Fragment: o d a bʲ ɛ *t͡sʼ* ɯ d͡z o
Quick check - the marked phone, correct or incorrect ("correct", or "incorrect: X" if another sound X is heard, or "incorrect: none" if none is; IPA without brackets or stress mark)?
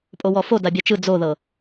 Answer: incorrect: t͡ʃ